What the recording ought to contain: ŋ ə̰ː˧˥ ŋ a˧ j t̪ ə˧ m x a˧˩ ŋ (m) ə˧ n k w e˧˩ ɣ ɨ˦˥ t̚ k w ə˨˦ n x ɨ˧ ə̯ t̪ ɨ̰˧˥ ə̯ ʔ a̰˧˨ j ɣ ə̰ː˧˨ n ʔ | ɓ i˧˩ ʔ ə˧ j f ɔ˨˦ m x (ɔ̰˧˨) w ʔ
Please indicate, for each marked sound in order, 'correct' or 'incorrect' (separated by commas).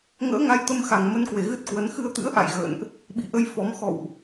correct, correct